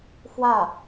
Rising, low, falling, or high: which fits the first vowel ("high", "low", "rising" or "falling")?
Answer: falling